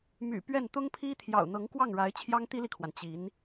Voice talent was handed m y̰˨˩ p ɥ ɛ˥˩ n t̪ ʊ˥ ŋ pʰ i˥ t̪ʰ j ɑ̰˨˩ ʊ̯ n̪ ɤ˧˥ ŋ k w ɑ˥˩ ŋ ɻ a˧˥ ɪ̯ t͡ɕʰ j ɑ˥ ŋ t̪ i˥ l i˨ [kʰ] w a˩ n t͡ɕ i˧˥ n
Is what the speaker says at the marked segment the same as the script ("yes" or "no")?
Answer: yes